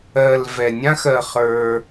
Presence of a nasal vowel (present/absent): present